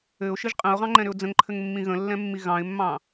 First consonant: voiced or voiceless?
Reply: voiceless